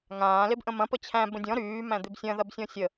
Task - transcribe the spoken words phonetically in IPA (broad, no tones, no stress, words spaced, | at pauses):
ŋãː lebʔə̃mɐ̃ pət͡ɕʰæ̃ bə̃dʲɔ̃ ɾyː mæ̃d̪ebsʲɐ̃ ðɐbsʲɔ̃sʲə